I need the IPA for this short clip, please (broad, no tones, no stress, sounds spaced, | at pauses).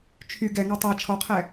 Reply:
t͡ʃʰ y ɡ ɛ ŋ ɑ tˤ æ t͡ʃʰ ɔ qʰ ɛ